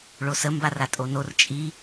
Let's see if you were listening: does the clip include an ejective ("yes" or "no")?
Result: yes